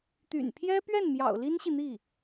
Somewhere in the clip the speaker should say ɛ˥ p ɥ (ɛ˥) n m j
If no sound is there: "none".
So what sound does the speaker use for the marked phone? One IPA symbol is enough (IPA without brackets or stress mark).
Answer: ɛ˥˩